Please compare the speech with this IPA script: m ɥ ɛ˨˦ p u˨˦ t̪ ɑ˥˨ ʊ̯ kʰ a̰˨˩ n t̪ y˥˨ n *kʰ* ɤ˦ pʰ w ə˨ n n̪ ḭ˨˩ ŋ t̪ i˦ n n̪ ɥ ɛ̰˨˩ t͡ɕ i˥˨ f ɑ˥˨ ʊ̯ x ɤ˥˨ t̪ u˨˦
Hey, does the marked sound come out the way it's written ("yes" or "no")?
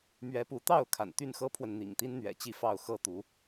no